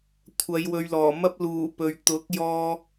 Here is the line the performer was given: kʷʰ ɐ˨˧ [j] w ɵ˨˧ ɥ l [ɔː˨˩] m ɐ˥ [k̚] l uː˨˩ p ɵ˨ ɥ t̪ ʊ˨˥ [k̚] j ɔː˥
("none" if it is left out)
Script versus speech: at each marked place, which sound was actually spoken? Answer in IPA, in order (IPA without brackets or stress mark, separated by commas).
j, ɔː˨˩, p̚, k̚